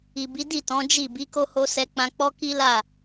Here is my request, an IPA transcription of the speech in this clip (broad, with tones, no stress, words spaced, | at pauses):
i˨bi˨˦di˦˨tɔ̃˨˦ d͡ʒi˦˨ bi˨˦ko˧ho˧ sɛ˧k͡pã˧k͡pɔ˦ki˦ la˦˨